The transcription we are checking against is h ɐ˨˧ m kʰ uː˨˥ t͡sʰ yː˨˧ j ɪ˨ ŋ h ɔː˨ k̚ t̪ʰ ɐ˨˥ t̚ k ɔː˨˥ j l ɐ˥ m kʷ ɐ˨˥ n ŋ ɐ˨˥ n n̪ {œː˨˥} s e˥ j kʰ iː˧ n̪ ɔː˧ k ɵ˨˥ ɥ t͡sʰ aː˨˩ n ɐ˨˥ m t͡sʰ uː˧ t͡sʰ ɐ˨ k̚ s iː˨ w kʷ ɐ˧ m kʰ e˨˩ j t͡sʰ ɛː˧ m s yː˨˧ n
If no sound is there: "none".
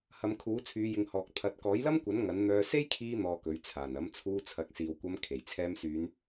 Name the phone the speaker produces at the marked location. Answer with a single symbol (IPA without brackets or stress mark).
œː˧